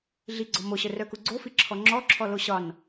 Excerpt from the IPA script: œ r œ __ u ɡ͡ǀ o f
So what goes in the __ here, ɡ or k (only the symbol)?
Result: k